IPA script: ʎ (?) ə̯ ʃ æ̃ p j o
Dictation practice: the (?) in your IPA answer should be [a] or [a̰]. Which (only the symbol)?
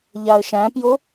a